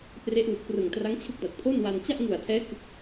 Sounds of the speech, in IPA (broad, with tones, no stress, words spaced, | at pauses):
pre˦˥ʔwu˨˩k̚prɯ˨˩ŋ tra˦˥ŋt͡ɕʰɯ˦˥k̚da˨˩t̚ pʰo˥˩nwa˧n t͡ɕa˥˩ʔŋu˨˩a̯tʰɛː˦˥ kɯ˦˥k̚